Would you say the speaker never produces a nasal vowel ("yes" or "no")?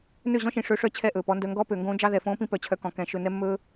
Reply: no